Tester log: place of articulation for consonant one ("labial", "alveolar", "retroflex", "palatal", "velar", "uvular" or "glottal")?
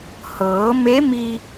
glottal